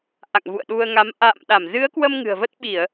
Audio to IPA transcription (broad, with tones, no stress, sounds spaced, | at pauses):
ʔ a̰˧˨ ŋ v ṵ˧˨ ə̯ ɗ u˧ ə̯ ŋ a˨˦ m ʔ a̰ː˧˨ m ɗ a˧˩ m z ɨ˨˦ ə̯ k w ə˧ m ŋ ɨ̤˨˩ ə̯ v ə˦˥ t̚ ɓ i˧˩˨ ə̯